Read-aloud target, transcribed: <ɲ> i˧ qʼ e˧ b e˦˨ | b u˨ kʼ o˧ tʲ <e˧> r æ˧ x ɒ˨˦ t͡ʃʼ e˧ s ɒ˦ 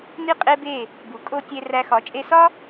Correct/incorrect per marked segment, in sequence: incorrect: n, correct

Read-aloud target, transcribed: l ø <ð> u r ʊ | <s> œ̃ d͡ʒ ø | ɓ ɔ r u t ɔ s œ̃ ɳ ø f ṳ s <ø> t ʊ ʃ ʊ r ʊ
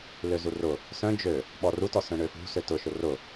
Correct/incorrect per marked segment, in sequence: incorrect: z, correct, correct

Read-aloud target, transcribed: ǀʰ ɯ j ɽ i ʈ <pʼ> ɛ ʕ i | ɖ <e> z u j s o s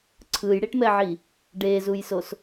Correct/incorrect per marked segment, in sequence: incorrect: m, correct

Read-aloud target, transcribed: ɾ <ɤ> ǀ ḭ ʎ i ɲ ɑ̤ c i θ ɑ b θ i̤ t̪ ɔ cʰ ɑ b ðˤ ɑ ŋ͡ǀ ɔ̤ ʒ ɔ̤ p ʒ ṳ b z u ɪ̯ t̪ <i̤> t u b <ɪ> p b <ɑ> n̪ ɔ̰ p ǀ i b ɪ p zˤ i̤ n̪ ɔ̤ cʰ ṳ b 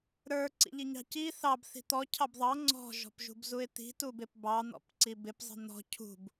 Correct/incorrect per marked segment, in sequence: incorrect: ə˞, correct, correct, correct

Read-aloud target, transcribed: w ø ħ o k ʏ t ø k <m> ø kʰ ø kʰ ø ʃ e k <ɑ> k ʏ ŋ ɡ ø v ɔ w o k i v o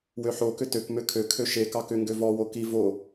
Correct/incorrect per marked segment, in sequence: correct, correct

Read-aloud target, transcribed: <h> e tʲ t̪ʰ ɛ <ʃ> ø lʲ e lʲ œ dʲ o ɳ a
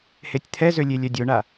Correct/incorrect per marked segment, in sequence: correct, incorrect: z

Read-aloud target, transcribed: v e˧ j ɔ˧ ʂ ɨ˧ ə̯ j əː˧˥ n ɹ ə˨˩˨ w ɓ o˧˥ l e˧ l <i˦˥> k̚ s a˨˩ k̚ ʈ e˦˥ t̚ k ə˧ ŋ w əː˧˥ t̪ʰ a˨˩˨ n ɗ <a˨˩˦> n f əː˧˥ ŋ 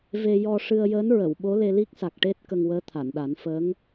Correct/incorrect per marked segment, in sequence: correct, correct

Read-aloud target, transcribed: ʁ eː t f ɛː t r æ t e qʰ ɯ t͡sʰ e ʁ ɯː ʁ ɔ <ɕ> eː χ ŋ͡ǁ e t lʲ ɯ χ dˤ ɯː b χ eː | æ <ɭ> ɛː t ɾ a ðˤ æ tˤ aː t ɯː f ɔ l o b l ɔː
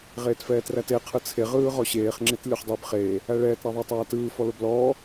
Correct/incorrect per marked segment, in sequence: correct, correct

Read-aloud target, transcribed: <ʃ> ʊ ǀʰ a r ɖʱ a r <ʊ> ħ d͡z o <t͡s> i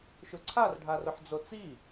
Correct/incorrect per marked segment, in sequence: correct, correct, correct

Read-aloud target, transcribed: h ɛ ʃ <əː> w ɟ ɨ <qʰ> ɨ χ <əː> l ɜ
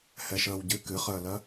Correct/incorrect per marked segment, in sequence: correct, incorrect: k, correct

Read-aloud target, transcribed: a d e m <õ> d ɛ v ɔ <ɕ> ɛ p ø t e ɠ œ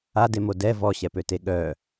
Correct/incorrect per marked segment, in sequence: incorrect: o, correct

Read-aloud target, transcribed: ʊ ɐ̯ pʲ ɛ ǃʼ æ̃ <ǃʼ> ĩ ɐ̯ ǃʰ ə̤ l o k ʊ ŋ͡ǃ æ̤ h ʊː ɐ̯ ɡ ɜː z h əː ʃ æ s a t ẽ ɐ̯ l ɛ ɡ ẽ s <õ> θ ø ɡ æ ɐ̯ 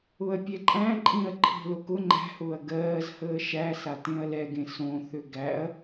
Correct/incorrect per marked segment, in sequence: correct, correct

